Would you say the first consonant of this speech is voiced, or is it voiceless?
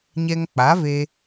voiced